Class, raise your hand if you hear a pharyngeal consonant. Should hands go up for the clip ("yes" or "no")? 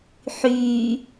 yes